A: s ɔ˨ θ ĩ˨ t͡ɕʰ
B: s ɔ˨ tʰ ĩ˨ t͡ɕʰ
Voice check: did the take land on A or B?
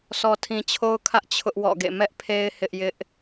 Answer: B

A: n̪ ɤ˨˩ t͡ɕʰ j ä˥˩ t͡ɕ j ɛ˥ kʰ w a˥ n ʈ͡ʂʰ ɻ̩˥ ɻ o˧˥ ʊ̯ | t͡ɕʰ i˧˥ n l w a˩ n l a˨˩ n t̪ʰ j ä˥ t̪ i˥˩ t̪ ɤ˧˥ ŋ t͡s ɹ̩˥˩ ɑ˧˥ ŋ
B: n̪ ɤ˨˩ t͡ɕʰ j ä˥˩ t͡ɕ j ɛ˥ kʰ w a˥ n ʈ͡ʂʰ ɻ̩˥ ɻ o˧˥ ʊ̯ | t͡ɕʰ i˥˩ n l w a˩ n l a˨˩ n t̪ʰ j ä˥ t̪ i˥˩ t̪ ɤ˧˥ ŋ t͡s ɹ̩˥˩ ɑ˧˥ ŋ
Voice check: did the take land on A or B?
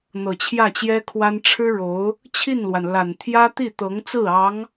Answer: B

